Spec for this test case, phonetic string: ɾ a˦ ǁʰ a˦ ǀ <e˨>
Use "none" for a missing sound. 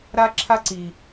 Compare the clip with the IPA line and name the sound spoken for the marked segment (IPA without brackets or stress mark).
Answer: i˨